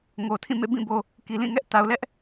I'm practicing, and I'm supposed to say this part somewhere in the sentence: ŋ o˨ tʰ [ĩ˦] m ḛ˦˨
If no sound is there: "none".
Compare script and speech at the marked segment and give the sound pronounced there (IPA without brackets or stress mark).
ĩ˦˨